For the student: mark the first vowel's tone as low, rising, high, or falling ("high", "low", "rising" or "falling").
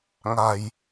low